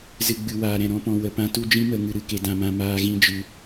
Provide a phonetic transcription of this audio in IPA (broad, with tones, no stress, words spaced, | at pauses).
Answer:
zɨ˨ɡ͡bɨ˨ waː˨ɾɛ̃˨ ɾɔ̃˦pɔ̃˧ wə˨pã˧tu˦d͡ʒĩ˦ mə˧ ŋɨ˧ɾɨ˧ke˧ dã˧mã˧ maː˦ɣĩ˦d͡ʒɨ˧